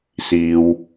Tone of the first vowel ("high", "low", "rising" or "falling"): high